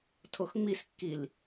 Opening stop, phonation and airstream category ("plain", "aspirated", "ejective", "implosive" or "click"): aspirated